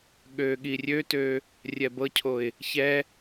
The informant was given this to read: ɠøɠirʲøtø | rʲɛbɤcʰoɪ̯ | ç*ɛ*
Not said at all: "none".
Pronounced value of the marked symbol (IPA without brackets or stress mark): ɛ